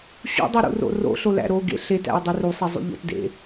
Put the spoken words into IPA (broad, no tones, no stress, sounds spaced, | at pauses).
ɕ ṵ dˤ u ɾ ṵ r o̰ r o̰ ɬ o l æ̰ ɾ o ɡ ḛ ɬ e t æ̰ ɐ̯ dˤ i r u sˤ e zˤ ṵ ʎ o̰ t d ḛ